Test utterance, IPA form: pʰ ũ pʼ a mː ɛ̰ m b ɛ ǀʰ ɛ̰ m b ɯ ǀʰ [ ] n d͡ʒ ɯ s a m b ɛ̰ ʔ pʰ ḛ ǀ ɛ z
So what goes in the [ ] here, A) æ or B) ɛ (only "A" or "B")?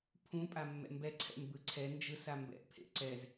B